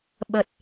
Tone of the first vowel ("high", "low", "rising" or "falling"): low